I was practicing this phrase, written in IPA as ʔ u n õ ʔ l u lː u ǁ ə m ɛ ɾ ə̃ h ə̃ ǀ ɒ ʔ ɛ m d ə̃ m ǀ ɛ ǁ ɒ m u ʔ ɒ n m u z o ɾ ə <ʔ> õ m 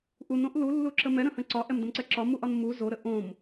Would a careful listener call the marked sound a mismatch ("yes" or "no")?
no